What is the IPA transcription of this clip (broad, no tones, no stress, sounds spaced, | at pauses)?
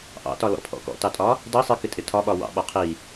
ʔ ɑ̰ t ɒ l ɔ̰ pʰ ɔ̰ k ɔ̰ t ɑ tʼ ɒ | d ʌ sˤ i k ɪ tʼ ɪ tʰ ɒ ɓ ɒ w ɑ̰ ɓ ɒ qʰ i